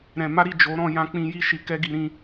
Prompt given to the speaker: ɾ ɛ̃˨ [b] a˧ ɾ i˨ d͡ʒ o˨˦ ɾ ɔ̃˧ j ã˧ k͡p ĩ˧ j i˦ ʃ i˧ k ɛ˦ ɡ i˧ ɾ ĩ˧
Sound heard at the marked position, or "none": m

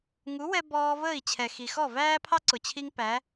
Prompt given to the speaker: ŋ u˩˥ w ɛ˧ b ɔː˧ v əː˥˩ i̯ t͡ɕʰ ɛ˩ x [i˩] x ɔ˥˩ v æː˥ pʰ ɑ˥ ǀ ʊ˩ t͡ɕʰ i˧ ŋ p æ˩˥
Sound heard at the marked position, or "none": i˩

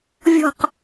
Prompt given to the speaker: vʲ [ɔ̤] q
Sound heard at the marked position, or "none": ɔ̤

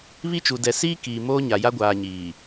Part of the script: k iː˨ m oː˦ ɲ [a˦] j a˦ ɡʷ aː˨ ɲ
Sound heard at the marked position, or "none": a˨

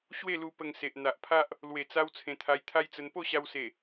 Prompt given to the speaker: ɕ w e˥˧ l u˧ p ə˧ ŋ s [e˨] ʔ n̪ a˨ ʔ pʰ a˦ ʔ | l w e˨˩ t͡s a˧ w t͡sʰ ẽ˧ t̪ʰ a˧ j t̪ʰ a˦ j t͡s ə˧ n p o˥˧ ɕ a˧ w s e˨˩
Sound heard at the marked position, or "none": e˨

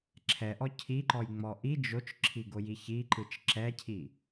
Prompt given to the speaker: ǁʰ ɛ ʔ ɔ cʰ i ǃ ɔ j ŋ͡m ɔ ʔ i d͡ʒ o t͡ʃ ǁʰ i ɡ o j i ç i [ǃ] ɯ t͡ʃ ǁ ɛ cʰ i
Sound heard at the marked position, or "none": ǃ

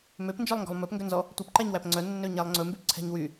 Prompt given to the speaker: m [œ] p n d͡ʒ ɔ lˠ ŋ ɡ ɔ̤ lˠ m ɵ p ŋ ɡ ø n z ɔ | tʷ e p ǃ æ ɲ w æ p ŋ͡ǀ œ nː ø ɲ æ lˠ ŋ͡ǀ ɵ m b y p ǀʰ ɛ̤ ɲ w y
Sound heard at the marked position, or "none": ø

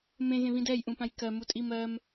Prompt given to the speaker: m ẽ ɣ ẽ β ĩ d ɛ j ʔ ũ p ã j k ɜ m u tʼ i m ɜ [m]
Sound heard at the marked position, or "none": m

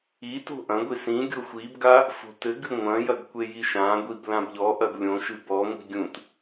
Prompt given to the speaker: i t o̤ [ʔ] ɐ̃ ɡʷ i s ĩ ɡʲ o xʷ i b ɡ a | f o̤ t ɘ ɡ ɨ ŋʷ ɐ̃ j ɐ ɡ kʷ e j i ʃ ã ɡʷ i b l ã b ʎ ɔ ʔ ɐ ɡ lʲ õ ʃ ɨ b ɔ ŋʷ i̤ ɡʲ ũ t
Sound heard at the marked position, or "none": ʔ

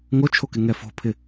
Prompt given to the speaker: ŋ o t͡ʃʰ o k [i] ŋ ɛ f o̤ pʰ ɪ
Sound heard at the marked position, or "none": ɪ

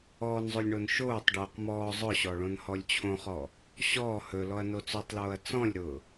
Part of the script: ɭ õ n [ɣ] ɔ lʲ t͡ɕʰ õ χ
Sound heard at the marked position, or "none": h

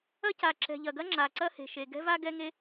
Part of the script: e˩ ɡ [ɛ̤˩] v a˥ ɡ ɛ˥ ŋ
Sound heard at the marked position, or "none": ɛ̤˥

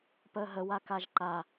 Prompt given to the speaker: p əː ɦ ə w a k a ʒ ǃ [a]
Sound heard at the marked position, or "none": a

